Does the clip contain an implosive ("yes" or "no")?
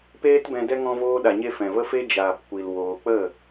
yes